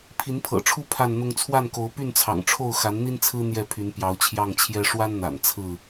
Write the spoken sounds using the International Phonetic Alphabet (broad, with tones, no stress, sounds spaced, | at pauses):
pʰ i˨˦ n pʰ ɤ̰˨˩ ʈ͡ʂʰ u˦ pʰ a˥˨ n n̪ ʊ˦ ŋ t͡sʰ w a˥˨ n k o˨˦ ʊ̯ p y˥˨ n t͡sʰ ɑ̰˨˩ ŋ ʈ͡ʂʰ o˥˨ ʊ̯ x a˨˦ n n̪ i˦ n t͡sʰ ɹ̩˦ n̪ j ɛ˥˨ pʰ y˨˦ n p j ɑ˨˦ ʊ̯ t͡ɕʰ j ɑ˥˨ ŋ t͡ɕʰ j ɛ˦ ʂ w a˦ n n̪ a̰˨˩ n t͡sʰ ɹ̩˥˨